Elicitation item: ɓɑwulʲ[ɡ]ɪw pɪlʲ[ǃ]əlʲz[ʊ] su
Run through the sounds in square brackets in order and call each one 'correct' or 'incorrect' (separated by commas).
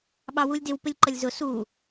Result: incorrect, correct, correct